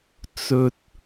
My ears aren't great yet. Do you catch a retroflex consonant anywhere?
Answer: no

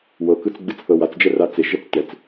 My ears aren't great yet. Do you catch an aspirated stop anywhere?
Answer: no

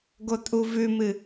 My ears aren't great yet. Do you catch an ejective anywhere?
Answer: yes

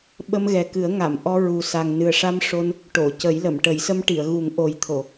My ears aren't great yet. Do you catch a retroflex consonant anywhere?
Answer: yes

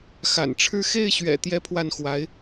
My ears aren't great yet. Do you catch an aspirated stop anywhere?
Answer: yes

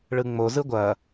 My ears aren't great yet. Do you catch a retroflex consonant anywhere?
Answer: yes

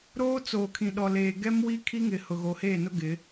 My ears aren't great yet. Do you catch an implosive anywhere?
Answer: yes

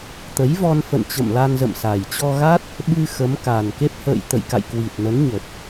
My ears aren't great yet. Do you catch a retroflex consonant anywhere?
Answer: no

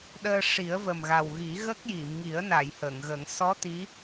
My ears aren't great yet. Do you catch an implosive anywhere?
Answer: yes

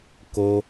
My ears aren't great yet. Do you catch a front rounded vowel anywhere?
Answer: no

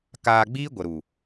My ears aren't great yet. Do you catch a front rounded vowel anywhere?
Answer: no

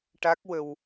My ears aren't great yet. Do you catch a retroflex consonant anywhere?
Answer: yes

